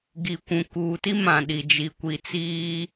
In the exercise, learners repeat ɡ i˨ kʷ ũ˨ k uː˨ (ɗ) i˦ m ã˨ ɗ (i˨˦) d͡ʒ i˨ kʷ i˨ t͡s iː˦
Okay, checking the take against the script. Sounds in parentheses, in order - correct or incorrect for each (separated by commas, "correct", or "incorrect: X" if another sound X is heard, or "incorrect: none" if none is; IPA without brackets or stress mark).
incorrect: t, incorrect: i˨